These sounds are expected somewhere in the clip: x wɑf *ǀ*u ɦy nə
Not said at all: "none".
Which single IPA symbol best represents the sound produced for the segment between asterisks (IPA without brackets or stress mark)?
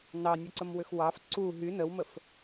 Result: ǀ